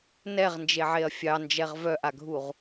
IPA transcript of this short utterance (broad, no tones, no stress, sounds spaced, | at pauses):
n ɛ ʁ n d͡ʒ e ʕ e ɐ̯ fʲ ɑ n d͡ʒ ɛ ʁ v œ ʔ a ɡʱ u ʁ